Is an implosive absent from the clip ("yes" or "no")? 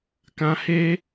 yes